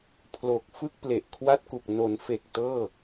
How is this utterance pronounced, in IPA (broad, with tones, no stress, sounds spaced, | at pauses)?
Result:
pʰ l o˨˩ k̚ f ɯ˥˩ k̚ p l e˨˩ ʔ kʰ w a˥˩ t̚ k u˨˩ k̚ n o˩˦ n f e˨˩ k̚ t ɤː˥˩